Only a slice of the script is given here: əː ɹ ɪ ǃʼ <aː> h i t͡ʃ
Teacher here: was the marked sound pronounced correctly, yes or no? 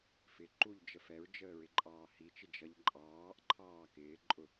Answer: no